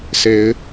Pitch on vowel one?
rising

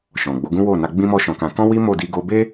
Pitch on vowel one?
low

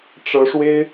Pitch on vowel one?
rising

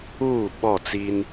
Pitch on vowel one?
falling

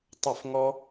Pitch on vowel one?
falling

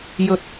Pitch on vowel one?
rising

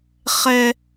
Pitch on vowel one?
high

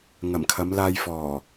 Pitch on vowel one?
low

